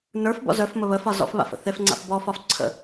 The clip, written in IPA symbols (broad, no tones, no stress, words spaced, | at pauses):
nə˞fbɔ̰ zœfmə βəfɒ zɔ̰fβa̰fə̰ θefŋ͡ǀa̰f bɔfɒf ǀʰə̰